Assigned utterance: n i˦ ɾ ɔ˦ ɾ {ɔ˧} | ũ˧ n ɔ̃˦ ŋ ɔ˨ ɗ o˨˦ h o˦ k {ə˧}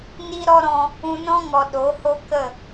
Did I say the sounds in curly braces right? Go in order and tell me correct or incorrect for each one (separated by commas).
incorrect, incorrect